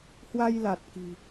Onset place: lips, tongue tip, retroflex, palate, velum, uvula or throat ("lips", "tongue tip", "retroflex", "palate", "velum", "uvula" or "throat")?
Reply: throat